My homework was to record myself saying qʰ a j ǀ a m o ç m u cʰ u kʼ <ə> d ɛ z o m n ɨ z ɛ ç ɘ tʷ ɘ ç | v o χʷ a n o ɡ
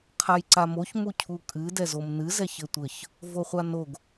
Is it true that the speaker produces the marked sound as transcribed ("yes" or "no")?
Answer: no